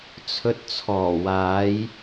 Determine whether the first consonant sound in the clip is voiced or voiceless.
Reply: voiceless